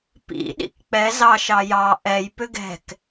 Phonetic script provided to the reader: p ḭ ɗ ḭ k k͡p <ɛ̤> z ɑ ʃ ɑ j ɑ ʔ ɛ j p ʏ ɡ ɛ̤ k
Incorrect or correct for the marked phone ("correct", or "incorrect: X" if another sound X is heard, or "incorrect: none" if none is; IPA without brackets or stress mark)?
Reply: incorrect: ɛ